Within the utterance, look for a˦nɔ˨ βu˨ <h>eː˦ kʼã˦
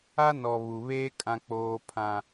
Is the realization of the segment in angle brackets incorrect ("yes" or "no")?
yes